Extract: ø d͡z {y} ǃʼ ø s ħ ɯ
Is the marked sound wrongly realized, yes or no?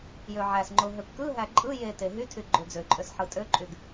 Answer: yes